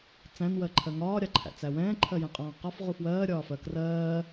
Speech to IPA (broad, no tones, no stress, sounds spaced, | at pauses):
t͡s æ̃ n w ɜ ǃʰ ɜ ŋ ɒː ɾʲ ɑ ǃʰ æ̰ t͡s æ w ɛ̃ː ǃʰ ɜ j ɛ̃ qʼ ɔ̃ː q ɒ f ʁ u f w ɜː ɾʲ ɒː f ɜ k r ɜː